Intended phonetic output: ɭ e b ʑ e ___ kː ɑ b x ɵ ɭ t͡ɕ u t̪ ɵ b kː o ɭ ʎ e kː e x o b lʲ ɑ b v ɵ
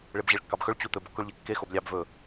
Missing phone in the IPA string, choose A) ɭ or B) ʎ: A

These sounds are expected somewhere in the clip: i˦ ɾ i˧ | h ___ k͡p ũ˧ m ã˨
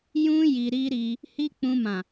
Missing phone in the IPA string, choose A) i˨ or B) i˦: B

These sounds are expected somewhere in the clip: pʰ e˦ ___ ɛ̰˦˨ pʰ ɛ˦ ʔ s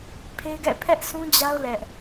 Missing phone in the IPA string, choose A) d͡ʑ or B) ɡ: B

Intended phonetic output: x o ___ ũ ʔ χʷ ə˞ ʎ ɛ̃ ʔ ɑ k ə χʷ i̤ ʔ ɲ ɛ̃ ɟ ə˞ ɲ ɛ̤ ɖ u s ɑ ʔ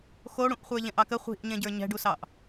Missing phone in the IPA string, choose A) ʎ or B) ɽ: B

